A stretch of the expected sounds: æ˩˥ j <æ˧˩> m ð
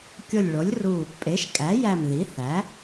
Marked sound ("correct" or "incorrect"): correct